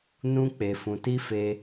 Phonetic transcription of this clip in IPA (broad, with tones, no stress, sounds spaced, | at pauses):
n ũ˦ k͡p e˧ f ũ˧ t i˦ f e˧